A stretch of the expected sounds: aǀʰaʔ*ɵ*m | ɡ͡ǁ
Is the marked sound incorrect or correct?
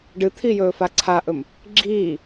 correct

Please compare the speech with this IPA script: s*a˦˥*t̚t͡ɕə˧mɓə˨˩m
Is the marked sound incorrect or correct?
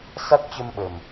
correct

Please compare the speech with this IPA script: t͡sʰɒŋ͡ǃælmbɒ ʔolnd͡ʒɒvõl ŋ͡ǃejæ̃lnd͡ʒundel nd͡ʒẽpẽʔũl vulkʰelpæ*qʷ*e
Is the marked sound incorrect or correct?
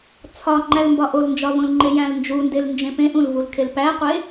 correct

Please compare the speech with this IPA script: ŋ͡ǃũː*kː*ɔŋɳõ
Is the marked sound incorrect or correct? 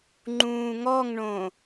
incorrect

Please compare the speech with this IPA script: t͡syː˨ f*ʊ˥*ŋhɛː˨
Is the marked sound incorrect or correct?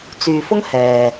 correct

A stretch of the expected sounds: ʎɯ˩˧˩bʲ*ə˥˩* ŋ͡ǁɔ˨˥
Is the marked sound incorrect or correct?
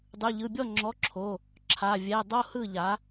incorrect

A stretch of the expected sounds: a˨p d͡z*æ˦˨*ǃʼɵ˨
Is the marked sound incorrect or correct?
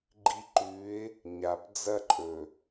incorrect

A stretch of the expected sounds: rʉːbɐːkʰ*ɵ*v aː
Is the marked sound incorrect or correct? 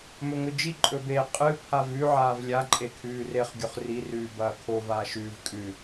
incorrect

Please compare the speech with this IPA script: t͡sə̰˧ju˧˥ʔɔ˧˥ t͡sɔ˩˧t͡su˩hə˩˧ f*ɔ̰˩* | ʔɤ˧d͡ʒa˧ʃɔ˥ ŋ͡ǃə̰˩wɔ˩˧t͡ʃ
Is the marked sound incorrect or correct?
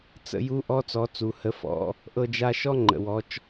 incorrect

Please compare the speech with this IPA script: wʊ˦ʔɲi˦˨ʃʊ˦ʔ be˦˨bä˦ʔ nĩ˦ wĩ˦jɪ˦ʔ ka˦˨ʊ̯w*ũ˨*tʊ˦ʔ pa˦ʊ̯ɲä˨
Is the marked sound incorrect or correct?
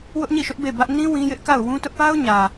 incorrect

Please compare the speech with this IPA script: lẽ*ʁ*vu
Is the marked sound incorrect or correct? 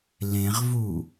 correct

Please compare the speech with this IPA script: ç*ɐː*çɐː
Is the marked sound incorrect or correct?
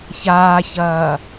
incorrect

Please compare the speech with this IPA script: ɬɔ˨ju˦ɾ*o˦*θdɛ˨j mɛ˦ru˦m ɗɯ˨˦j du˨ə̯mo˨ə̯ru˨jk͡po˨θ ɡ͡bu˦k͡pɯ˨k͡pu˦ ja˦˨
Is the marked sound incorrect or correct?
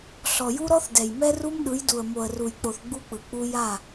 incorrect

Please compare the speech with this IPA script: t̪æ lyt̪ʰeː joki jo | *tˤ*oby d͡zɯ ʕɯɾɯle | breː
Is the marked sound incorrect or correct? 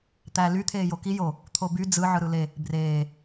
incorrect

